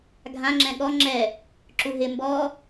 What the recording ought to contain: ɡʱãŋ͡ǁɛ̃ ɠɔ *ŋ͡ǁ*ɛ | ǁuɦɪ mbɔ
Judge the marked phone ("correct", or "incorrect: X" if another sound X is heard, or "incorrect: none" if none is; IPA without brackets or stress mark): correct